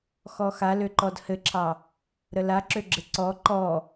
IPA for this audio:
xɔxaløǃɔd hɘǁʰɑ | ɾəlaǁøɡ͡ǁɘ ǀɔ ǃɔ

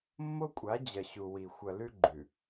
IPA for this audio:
mːo˦kʷʼa˨˦d͡ʑɐ˨ ɕu˨wi˨ xʷɐ˨lʉ˦ɡ͡ǃʉ˨

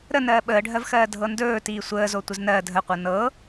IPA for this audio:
ɾənɜː ɓəːɖʱɜvxɜː dʱɤndɵː tiːsʷəːzo tʷəznɜ dʱəqʷɤ nɤ

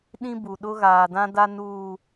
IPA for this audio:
ɗĩ˦ bu˨ ɗʊ˦ ɣaː˨dã˦da˦ nuː˦˨

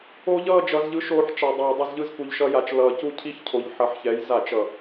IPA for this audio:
o˦˥ʎʌː˥˧ d͡ʒʌ˦˥z ʎɯ˨˥ ʃoː˦˥ħt͡ʃa˧dˤʌː˧ dˤʌ˥˧z ʎɯ˥˧zku˧ʎʃʌ˦˥ja˧t͡ʃ lʌː˧ cu˥˧cʰi˦˥çcʰo˨˥ʎ ħʌ˨˥ħçɛ˨˥j za˧˩˧t͡ʃʌ˨˩

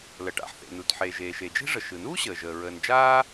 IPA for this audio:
lə˩ʈa̰˩ħθḛ˩nu˩t ħe˩ ʒeː˩ʃe˩d͡ʒe̤˥ʐə˩ ʃɯ˩nuː˥ɕəː˩ʒəː˩ ɹəː˩nd͡ʒaː˥

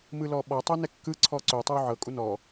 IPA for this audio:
mɯlɔɓɔ tˤɛnɛkːɯ ǀʰɔǀotˤɛw ʕɤkʼu nɔ

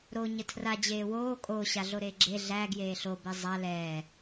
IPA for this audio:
ɾo ɲətʰra d͡ʑeːwoː kʼoːɕaɮoɾeː ɡ͡ǁe ɮæ ɡjeːɬobɛ zˤa lɛː

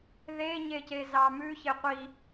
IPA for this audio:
ðeɲece zɑmʉ çeqʷi

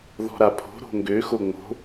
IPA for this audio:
ðɔ̤ɾapʰo̤ ɾo̤ŋɡø xoŋ͡mo̤

